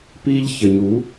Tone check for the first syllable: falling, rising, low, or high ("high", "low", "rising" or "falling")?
high